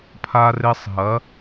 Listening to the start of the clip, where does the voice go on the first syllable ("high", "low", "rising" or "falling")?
high